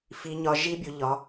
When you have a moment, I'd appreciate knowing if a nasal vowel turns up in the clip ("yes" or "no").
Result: no